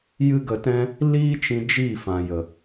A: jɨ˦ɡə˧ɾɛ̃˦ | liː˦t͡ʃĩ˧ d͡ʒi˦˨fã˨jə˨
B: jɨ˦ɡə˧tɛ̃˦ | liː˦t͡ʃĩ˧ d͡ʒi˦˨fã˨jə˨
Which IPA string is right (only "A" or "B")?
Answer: B